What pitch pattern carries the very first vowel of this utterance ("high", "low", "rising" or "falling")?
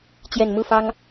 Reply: low